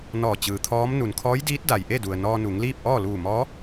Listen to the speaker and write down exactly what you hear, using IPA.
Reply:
n ɔː˧˩ t͡ɕ ɯː˩ t̪ʰ ɔː˧˥ m n u˩ n kʰ ɔː˧˥ j d iː˧˥ t̚ d a˩ j ʔ e˥˨ d u˩ ə̯ n ɔː˧ n u˩˧ ŋ l iː˥˨ p̚ ʔ ɔː˥˨ l uː˧˩ m ɔː˧˥

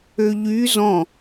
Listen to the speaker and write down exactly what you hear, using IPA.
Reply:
ø ʎ y z ɔ̃

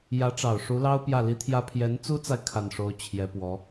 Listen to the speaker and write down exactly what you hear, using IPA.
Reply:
j ä˧˥ ʈ͡ʂ ɑ˨˩ ʊ̯ ʂ u˧˥ l ɑ˥ ʊ̯ p j ä˥˩ l i˥ t̪ʰ j ä˥ pʰ j ɛ˧˥ n t͡s u˥ t͡s a˨ ɪ̯ kʰ a˥˩ n ʂ o˥ ʊ̯ t͡ɕʰ j ɛ˧˥ p w ɔ˧˥

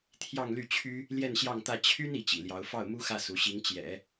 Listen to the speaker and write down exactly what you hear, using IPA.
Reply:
t̪ʰ j ɑ˥˧ ŋ l y˥˩ t͡ɕʰ y˥ | l j ɛ˥˧ n ɕ j ɑ˥˧ ŋ t̪ ä˥˩ t͡ɕʰ y˥ n i˧˥ t͡ɕ ḭ˨˩ l j ɑ˧˥ ʊ̯ f ɑ˥˩ ʊ̯ m u˥ x ä˥˩ s u˧˥ ɕ i˧˥ ŋ t͡ɕ j ɛ̰˨˩˦

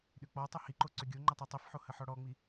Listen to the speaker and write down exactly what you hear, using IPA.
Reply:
ɗ ʏ k͡p ɔ tˤ ʊ h i ǃ o ǀ ʏ ɡʲ o ŋ͡ǃ ə tˤ o tˤ i f ħ o h ə ħ ɔ ɽ ɔ ŋ͡m i

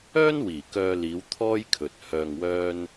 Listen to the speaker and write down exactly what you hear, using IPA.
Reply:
œː˥ n w iː˨˩ k œː˧ l iː˨˧ w t̪ʰ ɔː˥ j kʰ ɵ˨ t̚ h œː˧ ŋ w œː˥ n

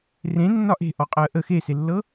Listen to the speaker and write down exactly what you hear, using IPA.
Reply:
r ẽ nː ɒ ʔ e̤ ʔ ɔ qʼ əː ʔ ə x e s e lː ɤ

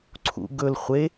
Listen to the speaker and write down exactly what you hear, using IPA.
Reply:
ǀʰ ṵ ɡ ɵ l χʷ e

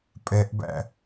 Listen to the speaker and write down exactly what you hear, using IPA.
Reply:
pʼ ɛ ʔ b æ̰

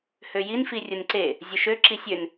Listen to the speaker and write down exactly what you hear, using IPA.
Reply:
h ø j i n f i rʲ ʊ n ǀ e | zʲ ʊ ʃ ø ǁ i sʲ ø n

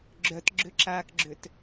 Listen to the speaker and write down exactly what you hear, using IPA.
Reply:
ɡ͡ǁ œ t ɡ͡ǁ ʏ ǁ aː k ɡ͡ǁ ʏ t

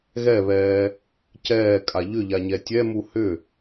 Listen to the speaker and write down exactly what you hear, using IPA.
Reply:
ɣ ɛ β ɛː | c ɛː kʼ a ʎ ʏ ʎ a ɲ ɛ tʲ ɛ m u h ʏ

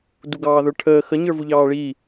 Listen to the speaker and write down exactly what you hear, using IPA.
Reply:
d u ɡ ɑː ð ə˞ ʈʰ əː x ə ɲ ə˞ v u ʎ ɑː ɭ iː

